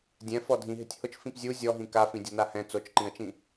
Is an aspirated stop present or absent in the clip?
absent